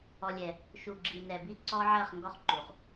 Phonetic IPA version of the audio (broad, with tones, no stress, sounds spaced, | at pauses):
ɔ˨ lʲ ɛ˨ | ʃ u˨ ɡ͡ǁ i˨ n ɛ˨ b i˦ ǀ ɔ˦ ʕ ɐ˦˨ χ ŋ ɡ ɔ˦ χ ǃ u˨ χ